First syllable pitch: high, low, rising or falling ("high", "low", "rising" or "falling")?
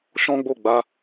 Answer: high